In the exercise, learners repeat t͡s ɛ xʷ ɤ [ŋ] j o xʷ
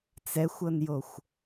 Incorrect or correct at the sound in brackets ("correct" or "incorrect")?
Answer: incorrect